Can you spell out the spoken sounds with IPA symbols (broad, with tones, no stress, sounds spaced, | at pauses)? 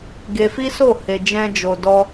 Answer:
ɡ e˧ f i˦ s o˦˨ h e˧ d͡ʒ ɛ̃˦ d͡ʒ o˧ d ɔ˦